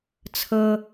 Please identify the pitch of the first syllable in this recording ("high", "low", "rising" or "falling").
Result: high